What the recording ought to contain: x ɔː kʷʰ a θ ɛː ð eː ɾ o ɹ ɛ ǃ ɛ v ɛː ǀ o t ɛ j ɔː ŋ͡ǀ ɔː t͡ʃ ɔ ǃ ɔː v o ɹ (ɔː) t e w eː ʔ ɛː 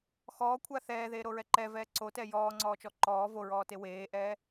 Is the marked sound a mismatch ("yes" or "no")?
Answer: no